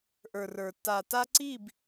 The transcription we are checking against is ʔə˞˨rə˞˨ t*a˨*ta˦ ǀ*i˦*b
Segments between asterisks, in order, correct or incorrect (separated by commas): correct, incorrect